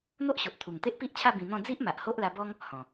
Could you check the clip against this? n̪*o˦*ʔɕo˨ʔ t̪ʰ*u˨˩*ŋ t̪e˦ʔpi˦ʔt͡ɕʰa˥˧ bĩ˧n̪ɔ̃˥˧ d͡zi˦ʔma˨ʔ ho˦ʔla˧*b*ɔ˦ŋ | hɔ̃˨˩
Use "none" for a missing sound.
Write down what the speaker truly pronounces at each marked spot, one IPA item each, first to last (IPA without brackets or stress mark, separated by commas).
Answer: o˦, u˨˩, b